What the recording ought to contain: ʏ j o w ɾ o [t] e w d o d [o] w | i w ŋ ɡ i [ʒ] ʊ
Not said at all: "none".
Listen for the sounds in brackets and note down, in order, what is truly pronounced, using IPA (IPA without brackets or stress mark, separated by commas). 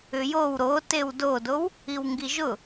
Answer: t, o, ʒ